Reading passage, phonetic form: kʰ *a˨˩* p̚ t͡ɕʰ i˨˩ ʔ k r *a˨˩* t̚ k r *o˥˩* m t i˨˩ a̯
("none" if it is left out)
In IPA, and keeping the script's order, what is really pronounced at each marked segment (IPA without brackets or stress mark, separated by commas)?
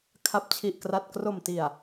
a˨˩, a˨˩, o˨˩